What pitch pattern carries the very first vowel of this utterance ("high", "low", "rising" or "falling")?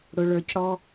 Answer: high